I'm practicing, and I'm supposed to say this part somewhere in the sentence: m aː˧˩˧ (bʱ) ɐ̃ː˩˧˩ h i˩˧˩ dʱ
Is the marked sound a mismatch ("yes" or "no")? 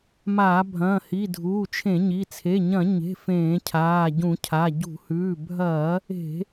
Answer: no